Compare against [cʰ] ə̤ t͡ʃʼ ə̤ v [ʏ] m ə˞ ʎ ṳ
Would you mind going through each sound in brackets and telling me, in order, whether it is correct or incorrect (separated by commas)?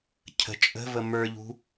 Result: correct, incorrect